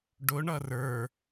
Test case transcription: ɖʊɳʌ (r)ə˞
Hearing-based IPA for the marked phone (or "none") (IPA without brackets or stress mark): r